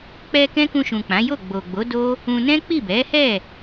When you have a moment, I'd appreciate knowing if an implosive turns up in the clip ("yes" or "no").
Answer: no